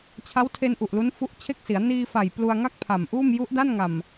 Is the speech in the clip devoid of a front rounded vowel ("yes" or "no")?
yes